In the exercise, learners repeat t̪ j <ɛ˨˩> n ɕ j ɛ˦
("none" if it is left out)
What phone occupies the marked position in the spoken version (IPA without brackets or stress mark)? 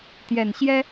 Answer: ɛ˨˩